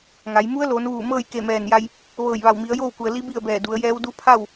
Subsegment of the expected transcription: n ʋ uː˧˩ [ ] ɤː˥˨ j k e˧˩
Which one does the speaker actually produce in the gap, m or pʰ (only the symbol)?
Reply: m